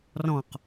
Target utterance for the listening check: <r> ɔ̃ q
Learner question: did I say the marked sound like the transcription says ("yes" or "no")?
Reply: yes